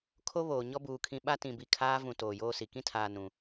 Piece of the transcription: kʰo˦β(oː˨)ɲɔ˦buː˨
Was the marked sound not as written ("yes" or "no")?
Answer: no